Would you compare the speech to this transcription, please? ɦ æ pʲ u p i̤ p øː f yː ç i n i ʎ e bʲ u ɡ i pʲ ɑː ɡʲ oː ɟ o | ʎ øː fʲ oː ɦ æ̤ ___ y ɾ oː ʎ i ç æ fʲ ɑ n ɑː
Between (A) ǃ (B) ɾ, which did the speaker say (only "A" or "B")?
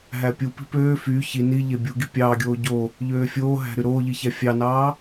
B